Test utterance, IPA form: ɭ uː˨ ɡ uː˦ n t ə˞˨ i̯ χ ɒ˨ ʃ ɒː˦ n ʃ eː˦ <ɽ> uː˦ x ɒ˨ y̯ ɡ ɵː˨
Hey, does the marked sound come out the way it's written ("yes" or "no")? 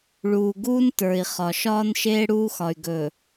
yes